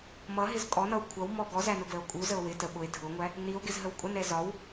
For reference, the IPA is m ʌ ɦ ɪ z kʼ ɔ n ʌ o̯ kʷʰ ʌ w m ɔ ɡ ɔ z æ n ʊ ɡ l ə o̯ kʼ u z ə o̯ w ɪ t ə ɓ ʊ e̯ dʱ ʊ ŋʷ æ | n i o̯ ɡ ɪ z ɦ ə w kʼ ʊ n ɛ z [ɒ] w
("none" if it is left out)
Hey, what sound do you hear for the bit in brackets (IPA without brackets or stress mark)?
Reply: ɒ